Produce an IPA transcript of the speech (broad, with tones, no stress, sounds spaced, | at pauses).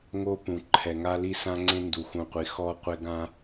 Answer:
ŋ o˦ p ũ˨ ǃʰ ɛ˨ ŋ a˦ l i˦ s ã˦ ŋ͡ǀ ẽ˦ n d u˨ x ũ˨ qʷ i˨ x ɔ˦ qʷ e˦ ɡ ã˦